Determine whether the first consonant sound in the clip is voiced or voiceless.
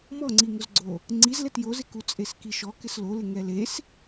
voiced